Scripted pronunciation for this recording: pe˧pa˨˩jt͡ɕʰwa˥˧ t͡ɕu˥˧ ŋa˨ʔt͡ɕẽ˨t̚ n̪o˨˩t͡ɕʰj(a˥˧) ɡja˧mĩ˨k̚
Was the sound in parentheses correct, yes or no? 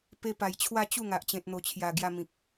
no